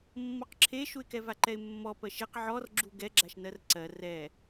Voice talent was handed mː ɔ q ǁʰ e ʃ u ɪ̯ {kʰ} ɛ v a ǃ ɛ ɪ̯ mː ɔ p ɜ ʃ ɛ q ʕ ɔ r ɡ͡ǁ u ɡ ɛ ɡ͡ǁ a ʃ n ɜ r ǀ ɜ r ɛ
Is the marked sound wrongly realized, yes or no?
yes